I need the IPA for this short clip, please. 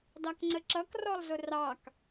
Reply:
d ɑ k ŋ͡ǀ ə ǁ ʌ k r ɔ lˠ z ʊ r ɑ k

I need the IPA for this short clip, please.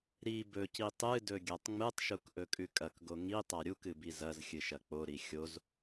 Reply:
ɾ i b ɵ c i tˤ ɨ d ɵ ɡʲ a tˤ ŋ͡m ɨ tˤ ʃ u k ʔ ɵ kʼ ʉ kʼ ɐ k ɡ o ŋ i tˤ a ɾʲ u k ɨ b i z ɐ z xʲ ɨ ʃ ɐ k͡p o ɾ i xʲ o z

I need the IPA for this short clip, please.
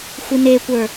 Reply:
xʷ i n e kʷ ə˞

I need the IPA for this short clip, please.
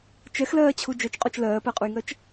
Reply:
t͡ʃ ɛ x l ɜː t͡ɕʰ u d͡ʒ œ t͡ʃ qʼ o t͡ʃ l ɜː p ɜ qʼ u j ŋ ɜ t͡ʃ

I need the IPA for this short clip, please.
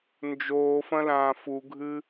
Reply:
n d͡ʒ oː f ɐ̃ l ãː f u ɡʱ ɨ

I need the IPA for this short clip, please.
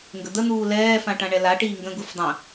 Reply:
ŋ ɡ ə d̪ ə n̪ uː l ɛː f ã ʈ ã ɳ ɛ l a ʈ iː ŋ ɡ ə̃ ɡ u f dˤ ə̃

